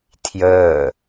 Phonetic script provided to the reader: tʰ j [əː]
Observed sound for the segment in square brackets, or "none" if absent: əː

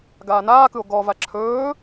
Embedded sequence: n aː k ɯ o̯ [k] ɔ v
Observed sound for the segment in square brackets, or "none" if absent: ɡ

